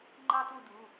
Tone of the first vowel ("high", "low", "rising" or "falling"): high